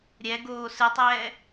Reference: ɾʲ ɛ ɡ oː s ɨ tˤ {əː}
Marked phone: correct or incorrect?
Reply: incorrect